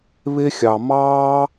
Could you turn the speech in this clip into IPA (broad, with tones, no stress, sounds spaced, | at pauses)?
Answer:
β e˧ xʲ ɑ˨ m ɑː˦